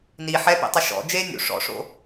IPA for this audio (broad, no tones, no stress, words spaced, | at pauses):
ni ħɛpḭtˤɪ ʃɔ̰ d͡ʒe nʲṵ ʂɔ̰ʂo̰